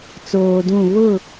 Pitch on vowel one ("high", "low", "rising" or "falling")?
low